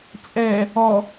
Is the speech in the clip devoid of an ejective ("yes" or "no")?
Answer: no